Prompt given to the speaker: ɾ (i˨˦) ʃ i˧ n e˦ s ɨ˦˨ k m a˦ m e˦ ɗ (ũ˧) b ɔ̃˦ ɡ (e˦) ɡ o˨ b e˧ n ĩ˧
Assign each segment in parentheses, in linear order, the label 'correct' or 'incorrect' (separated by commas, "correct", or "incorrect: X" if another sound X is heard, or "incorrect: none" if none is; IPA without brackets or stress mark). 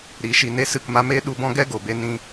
correct, incorrect: u˧, incorrect: ɛ˦